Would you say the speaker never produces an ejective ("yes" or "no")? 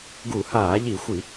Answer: yes